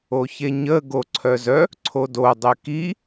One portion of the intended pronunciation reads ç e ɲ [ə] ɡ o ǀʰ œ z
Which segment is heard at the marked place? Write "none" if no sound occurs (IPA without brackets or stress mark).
ə